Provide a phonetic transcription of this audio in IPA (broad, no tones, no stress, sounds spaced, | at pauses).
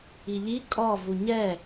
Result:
i ʎ i kʼ ɔ v u ɲ ɛ